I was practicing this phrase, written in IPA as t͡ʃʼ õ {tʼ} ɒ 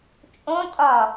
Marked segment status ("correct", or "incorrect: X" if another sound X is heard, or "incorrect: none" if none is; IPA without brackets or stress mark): correct